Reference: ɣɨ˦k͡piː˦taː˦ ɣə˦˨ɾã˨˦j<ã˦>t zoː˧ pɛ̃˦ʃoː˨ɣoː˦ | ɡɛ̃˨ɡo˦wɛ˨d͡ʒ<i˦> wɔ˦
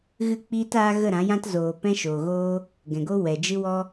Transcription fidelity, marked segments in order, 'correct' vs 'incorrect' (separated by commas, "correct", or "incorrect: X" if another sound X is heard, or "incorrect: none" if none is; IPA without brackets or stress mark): correct, incorrect: ɨ˦